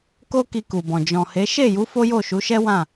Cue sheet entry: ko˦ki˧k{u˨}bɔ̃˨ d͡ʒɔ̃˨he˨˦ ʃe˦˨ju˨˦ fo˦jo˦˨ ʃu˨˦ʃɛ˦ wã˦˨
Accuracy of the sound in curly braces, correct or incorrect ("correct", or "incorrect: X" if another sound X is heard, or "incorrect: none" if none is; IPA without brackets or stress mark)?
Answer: correct